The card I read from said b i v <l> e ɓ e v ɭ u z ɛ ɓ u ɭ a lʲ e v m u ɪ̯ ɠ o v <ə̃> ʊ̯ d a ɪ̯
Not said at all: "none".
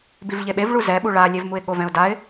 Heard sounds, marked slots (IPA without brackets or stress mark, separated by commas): ʎ, ɛ̃